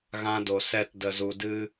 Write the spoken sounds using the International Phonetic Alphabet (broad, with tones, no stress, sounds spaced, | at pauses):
ɣ ã˧ d o˨ s ɛ˧ t d ə˨ z u˨ d ɨ˧